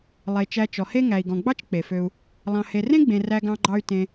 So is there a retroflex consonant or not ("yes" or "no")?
no